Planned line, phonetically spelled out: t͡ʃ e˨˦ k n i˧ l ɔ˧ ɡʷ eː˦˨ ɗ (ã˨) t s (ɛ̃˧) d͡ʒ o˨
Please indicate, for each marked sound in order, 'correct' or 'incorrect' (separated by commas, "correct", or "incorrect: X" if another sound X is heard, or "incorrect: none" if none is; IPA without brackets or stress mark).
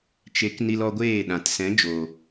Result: correct, incorrect: ɛ̃˨˦